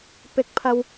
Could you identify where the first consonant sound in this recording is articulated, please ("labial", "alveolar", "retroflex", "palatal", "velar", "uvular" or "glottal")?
labial